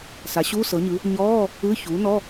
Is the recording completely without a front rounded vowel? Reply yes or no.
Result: yes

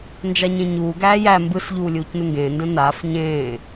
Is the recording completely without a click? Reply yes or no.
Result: yes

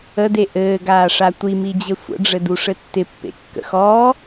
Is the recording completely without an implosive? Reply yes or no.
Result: yes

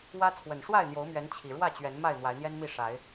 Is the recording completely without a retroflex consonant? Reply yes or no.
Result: no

